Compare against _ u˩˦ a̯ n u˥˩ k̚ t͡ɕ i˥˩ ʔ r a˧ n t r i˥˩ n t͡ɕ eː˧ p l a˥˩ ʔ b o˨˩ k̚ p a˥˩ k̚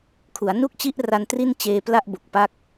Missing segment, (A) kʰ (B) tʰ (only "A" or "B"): A